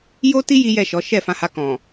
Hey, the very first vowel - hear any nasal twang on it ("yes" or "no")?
no